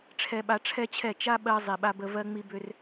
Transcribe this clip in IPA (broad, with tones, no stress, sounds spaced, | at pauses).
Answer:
ʈ͡ʂʰ ɛ˧ ɓ a˧ ʈ͡ʂʰ ɛ˦ t͡ɕʰ ɛ˦˨ t͡ʃ a˦ ɓ ɜ˧ zˤ i˨ ɓ a˧ b ə˧ v ɜ˦ ŋ͡m i˦ b ʏ˦ r